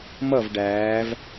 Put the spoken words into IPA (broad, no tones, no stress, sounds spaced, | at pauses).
m ʌ v ɖ æː v